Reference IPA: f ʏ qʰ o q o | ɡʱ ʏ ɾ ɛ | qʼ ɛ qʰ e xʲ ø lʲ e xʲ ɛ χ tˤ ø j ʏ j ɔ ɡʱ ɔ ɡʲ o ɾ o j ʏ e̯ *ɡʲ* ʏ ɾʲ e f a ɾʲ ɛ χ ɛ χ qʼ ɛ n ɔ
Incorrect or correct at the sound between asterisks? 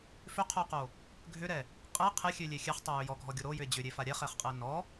incorrect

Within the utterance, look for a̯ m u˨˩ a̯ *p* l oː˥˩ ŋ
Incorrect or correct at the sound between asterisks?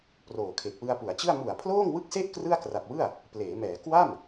incorrect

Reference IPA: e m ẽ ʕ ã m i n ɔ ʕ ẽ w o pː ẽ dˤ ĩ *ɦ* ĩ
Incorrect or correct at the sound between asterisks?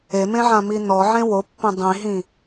correct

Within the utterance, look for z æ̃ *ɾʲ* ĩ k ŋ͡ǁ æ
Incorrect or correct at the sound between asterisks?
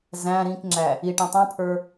incorrect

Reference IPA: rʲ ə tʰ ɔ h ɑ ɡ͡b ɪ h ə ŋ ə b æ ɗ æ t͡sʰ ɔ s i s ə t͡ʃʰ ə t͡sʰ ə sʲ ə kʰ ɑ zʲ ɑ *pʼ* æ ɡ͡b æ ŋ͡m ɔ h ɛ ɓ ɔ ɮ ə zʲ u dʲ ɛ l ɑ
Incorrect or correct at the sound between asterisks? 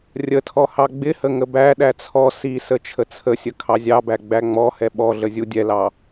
incorrect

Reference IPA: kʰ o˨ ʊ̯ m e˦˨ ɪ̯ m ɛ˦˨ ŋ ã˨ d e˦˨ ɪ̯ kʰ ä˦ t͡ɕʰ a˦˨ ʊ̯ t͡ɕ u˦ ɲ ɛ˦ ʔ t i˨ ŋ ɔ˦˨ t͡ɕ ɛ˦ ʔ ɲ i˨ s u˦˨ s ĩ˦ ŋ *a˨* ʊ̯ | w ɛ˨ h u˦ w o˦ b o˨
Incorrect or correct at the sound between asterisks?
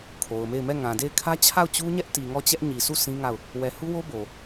incorrect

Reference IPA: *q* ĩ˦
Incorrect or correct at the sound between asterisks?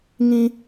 incorrect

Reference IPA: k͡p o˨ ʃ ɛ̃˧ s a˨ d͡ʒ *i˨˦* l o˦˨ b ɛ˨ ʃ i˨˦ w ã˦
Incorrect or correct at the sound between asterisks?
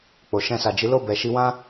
correct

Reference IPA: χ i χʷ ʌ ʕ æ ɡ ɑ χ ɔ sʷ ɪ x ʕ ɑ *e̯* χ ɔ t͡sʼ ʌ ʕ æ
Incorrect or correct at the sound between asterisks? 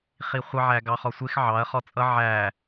incorrect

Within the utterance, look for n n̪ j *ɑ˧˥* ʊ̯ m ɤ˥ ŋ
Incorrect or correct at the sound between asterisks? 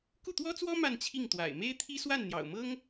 incorrect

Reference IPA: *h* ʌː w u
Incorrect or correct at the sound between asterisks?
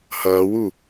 correct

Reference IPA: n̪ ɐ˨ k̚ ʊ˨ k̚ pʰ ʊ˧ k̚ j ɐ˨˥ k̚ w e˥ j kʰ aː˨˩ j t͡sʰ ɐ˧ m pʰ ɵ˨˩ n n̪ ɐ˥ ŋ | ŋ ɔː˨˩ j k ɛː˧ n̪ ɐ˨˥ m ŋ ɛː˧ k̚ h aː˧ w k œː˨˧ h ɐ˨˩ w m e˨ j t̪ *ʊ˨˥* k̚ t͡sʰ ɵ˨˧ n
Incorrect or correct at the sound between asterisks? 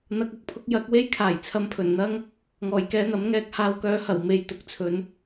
correct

